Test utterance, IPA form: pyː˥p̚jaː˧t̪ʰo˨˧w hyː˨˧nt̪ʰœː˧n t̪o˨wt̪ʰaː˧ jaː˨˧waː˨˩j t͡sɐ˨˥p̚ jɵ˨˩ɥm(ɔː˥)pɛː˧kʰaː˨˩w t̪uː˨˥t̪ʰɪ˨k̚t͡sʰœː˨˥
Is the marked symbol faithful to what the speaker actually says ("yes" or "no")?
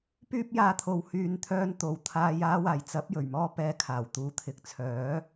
yes